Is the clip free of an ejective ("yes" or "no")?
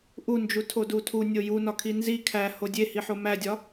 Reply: yes